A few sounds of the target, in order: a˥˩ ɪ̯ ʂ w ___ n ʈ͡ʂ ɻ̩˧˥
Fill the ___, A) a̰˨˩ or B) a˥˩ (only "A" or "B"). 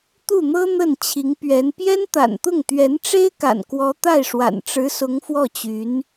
A